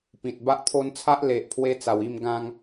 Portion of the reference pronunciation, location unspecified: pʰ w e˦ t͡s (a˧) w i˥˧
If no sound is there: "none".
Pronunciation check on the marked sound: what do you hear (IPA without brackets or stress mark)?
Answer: a˨˩